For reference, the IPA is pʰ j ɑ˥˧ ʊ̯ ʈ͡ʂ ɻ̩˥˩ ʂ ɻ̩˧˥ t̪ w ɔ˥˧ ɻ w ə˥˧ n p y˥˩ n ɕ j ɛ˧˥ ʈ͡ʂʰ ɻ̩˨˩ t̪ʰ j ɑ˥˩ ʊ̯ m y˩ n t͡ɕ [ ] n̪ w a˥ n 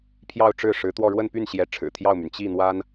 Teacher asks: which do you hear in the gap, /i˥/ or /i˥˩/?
i˥˩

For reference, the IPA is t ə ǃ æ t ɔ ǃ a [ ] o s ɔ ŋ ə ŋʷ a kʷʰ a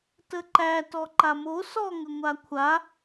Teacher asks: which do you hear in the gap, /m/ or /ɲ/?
m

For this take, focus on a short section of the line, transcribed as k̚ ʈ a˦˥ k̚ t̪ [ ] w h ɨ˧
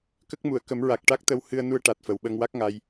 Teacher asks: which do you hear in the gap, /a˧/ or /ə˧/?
ə˧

